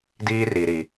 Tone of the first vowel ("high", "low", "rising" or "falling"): high